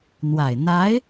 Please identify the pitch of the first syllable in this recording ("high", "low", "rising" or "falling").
low